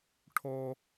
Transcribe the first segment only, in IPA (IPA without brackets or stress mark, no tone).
ʈʰ